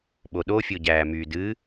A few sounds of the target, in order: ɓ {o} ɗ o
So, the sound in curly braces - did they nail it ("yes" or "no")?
yes